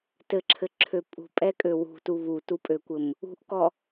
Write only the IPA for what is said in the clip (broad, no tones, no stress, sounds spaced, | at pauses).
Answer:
t ɘ ǁʰ ɘ ǁʰ ø pʼ ṳ pʼ ɛ kʼ ø w ṳ t u β u t u pʼ ø kʷ ɘ m | ṳ ʔ k ɔ